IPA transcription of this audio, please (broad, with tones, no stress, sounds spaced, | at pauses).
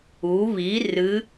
u˩˧ β i˩˧ r ɨ˩˧